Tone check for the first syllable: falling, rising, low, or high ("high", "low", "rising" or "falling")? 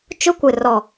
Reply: high